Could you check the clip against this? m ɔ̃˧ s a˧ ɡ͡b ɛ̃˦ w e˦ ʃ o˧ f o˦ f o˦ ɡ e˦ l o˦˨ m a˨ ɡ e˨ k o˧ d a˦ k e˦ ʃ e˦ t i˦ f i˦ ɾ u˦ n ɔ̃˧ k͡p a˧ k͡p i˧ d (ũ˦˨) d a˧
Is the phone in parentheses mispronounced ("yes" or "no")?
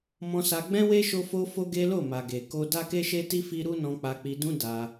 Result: yes